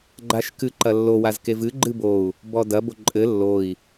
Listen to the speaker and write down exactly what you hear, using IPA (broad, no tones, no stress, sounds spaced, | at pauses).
ɡ͡ǃ a ʃ k ɨ ǃ ɐ lː o w a z k e v ɨ ɡ͡ǃ ɨ b o u̯ | b ɔ d ɐ b o ǃʼ ɘ lː o i̯